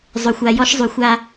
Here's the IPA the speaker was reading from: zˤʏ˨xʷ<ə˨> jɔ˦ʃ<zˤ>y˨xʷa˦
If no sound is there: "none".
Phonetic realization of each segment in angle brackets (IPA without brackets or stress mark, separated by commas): a˨, zˤ